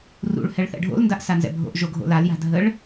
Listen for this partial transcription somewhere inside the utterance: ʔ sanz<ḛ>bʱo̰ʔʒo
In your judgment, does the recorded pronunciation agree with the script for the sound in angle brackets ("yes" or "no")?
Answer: no